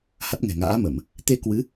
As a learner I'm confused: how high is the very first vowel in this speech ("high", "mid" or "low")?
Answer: low